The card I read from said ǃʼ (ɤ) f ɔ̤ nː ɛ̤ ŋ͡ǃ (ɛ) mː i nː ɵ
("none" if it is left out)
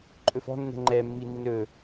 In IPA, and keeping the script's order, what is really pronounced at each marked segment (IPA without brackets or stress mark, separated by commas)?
ɵ, ɛ